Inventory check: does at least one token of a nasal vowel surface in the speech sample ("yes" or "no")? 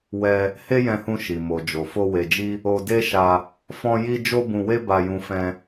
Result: yes